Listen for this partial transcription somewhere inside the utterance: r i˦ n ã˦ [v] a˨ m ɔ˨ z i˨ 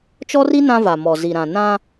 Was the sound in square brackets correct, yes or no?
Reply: yes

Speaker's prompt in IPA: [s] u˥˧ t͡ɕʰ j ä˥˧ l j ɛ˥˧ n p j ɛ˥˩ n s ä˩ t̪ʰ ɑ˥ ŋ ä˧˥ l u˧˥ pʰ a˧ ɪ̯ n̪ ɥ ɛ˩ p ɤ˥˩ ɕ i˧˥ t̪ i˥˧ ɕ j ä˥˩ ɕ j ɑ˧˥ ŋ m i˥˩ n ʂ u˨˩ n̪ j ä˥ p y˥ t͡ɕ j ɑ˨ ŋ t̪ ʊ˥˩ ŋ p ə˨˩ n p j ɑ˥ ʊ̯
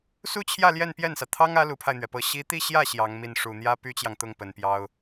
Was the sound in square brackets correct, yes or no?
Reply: yes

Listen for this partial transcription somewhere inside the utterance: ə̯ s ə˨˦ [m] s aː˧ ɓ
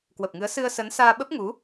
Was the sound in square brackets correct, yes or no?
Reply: no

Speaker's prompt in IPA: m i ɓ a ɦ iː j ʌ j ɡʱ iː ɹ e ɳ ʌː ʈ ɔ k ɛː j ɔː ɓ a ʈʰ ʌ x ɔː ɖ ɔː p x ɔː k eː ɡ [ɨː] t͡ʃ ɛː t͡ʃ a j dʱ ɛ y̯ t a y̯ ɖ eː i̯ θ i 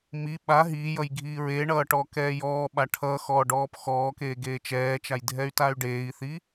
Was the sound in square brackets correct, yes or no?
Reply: no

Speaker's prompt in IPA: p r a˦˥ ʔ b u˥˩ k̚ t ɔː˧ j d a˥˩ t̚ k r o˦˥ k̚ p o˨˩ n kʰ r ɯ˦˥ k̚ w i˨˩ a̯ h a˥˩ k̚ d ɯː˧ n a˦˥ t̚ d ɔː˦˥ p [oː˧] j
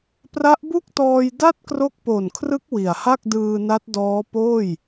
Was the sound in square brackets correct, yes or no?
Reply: no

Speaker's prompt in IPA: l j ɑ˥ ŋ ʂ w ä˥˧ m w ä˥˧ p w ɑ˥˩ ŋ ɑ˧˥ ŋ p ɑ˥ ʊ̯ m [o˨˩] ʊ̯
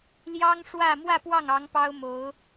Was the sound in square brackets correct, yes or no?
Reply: no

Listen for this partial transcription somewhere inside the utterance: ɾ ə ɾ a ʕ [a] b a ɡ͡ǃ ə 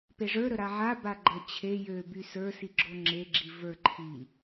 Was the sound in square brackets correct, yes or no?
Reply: yes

